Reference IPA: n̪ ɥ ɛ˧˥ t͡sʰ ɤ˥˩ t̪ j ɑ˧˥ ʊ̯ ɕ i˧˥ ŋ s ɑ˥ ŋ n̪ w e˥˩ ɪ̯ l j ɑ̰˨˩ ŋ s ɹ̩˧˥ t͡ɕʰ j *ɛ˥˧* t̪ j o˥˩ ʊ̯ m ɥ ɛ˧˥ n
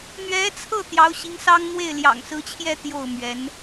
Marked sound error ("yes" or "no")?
no